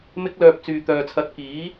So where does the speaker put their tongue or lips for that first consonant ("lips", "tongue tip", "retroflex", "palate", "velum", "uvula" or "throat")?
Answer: lips